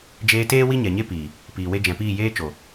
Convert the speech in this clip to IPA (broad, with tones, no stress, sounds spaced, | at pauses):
d͡ʒ eː˧ t eː˦ w i˦ ɲ ɛ˨ ɲ e˦ p iː˨ | p iː˨ w e˧ d͡ʒ ɛ̃˨ p iː˦˨ j eː˦ t͡ʃ o˨